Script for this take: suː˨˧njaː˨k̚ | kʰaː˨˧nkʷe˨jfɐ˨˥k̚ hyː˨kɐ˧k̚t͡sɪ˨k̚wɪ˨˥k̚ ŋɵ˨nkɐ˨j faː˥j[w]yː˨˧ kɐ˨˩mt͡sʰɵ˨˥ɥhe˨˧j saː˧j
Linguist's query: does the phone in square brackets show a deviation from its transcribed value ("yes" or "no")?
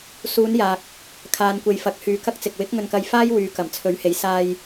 no